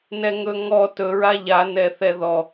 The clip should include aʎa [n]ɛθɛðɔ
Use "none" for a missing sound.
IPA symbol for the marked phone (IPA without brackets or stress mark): n